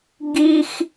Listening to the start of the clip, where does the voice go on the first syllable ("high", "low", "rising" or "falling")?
high